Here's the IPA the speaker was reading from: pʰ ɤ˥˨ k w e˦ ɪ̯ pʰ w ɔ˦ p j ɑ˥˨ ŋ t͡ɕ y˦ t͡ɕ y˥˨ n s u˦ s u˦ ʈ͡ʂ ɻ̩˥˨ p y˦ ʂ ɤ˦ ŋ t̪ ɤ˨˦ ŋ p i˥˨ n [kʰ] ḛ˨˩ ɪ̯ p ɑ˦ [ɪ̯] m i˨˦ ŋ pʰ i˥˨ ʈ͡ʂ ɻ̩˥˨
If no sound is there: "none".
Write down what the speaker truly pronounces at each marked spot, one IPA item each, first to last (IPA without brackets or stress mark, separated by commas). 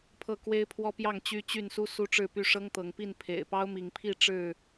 pʰ, ʊ̯